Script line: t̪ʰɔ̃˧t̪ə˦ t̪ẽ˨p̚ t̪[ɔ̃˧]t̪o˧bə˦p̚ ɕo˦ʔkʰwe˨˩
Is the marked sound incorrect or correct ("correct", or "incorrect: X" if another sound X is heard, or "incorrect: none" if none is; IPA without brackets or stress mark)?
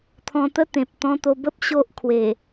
correct